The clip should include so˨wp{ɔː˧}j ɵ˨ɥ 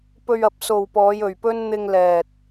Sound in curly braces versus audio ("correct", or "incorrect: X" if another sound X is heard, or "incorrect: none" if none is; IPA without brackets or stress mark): incorrect: ɔː˨˧